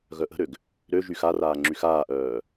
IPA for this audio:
ɣ œ ʔ ə̤ ɾ ø ɡ | ɾ ø ʒ y x a r aː ŋ͡ǁ y x aː ʔ œː

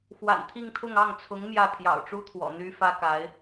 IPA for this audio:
x w a̰˨˩ n t̪ʰ i˥˧ ŋ t̪ʰ ʊ˥˧ ŋ ɑ˥˩ ŋ t͡sʰ ʊ˧˥ ŋ m j ä˥˩ t̪ʰ j ɑ̰˨˩ ʊ̯ ʈ͡ʂ u˥ t̪ʰ w ɔ̰˨˩ n̪ y˥ f ä˥ k a˧˥ ɪ̯

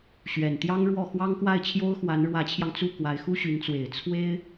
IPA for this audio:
ɕ ɥ ɛ˨˩ n t̪ j ɑ˥ ŋ ɻ w ɔ˥˩ x w ɑ˥ ŋ k w a˥˩ ɪ̯ t͡ɕʰ j o˥ ʊ̯ x w a˧˥ n ɻ w ä˧˥ t͡ɕʰ j ɑ˧ ŋ t͡s u˥˩ k w a˧˥ ɪ̯ x u˥ ɕ y˧˥ n t͡s w e˨˩ ɪ̯ t͡sʰ w e˥ ɪ̯

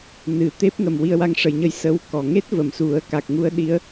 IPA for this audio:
n ɨ˨˩ t̪ e˦˥ p̚ ŋ ə˨˩ m w i˧ ə̯ w a˧ ŋ ʂ ə˨˩ j ɲ ə˧ j s ə˧˥ w k ɔ˨˩ ŋ e˦˥ t̚ v ə˨˩˨ m s u˨˩˦ ə̯ k a˨˩ k̚ ŋ u˧ ə̯ ɗ i˧˥ ə̯

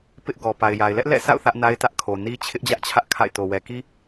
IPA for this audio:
p ɪ˦ ʔ ɡ ɔ˨ p a˨ ɪ̯ j a˨ ɪ̯ l ɛ˦ ʔ l ɛ̰˦˨ s a̰˦˨ ʊ̯ θ ä˦ ʔ n a˦ ɪ̯ t ä˦ ʔ kʰ o˨ n i˦ t͡ɕʰ ɪ˦ ʔ d͡ʑ ä˦ ʔ t͡ɕʰ ä˦ ʔ kʰ a̰˦˨ ɪ̯ t o˨ w ɛ˨ k i˦

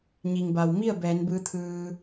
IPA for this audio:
ɲ i˩ ŋ b a˩ w m i˥˨ ə̯ b ɛː˩˧ n b ɯː˧˥ t̪ʰ ɯː˧

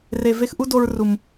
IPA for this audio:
r e˨ v e˧ x ʔ u˦ d o˧ ɹ r u˨ m

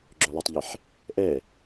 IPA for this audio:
ɡ͡ǁ ø lˠ ɵ tˤ ʎ i ħ | ʔ ɛ

